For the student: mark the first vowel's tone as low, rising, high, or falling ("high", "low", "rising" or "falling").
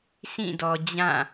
falling